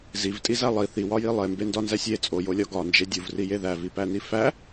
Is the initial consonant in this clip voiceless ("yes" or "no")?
no